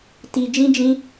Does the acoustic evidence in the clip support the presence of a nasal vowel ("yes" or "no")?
yes